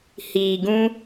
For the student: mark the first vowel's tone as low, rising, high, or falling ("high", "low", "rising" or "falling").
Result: low